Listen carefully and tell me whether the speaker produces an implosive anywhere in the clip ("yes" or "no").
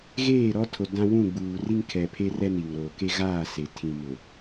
no